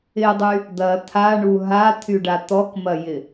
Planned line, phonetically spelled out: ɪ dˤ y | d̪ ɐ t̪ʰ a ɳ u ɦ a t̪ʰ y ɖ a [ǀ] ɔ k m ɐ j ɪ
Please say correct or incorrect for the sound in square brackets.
incorrect: t̪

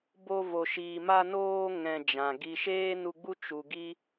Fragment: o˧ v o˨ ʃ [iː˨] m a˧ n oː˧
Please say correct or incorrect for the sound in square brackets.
correct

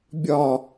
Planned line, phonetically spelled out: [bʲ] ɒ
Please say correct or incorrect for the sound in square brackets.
correct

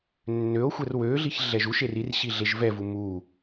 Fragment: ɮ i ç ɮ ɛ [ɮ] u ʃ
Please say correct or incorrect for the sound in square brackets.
incorrect: ʒ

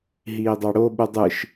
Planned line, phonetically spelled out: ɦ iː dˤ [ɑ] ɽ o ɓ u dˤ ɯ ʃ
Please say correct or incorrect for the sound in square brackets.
correct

